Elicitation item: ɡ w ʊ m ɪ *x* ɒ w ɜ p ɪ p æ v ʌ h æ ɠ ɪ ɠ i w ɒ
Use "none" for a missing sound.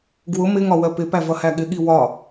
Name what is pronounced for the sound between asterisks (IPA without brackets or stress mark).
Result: ŋ